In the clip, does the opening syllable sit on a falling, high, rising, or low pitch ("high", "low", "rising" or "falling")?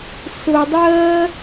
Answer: low